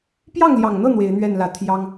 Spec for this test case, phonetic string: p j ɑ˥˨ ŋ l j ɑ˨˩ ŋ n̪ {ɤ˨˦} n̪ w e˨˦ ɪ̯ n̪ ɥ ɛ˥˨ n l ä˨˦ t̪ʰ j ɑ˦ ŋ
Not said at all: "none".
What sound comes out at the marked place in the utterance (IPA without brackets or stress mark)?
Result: ɤ˥˨